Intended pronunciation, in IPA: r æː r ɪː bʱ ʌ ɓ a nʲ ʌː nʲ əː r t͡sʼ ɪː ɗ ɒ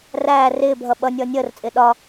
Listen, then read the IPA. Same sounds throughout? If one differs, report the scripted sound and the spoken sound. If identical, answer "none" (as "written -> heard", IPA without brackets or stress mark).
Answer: a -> ʌ